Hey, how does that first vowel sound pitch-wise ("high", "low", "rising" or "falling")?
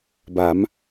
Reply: rising